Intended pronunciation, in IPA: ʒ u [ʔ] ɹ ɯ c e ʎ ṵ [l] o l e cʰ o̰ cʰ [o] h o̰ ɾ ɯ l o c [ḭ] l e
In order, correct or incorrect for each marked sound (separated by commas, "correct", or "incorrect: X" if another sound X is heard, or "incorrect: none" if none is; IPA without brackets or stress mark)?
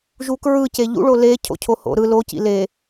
incorrect: k, incorrect: ɭ, correct, correct